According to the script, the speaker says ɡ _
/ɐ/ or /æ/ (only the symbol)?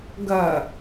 ɐ